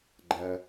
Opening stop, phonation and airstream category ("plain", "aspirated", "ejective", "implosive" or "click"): click